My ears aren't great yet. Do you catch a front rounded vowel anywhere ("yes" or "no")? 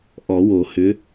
yes